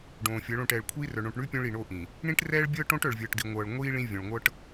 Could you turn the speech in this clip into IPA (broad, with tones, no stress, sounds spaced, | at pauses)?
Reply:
ɖ õː˨ fʲ ɤ˨˦ ɭ õ˦˨ ʈ ɛː˨ ɭ kʷʰ iː˦ r œ˨ ɳ õ˨ ʈ ɳ ʉ˦ pʲ õ˦ ɭ i˨ ɳ o˦ ʔ ĩ˨ | ɳ ĩ˦ ʈ r ɛː˦ ɭ bʲ ɤː˦ ʈ õ˦ ʈ œ˨ ɭ vʲ ɤː˨ ʈ d i˨ ŋʷ ɤː˨ ɭ ŋʷ iː˦ ɭ ĩ˦ vʲ õ˨ ɭ ŋʷ ɤ˦ ʈ